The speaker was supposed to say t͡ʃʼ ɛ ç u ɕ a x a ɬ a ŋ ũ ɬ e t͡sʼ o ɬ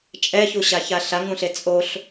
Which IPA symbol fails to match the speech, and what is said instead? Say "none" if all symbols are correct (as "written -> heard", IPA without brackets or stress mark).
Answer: x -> ç